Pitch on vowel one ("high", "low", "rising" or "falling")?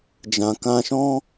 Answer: low